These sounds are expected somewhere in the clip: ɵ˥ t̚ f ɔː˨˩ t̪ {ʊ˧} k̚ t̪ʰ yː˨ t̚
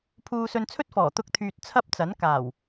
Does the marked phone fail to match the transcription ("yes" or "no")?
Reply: no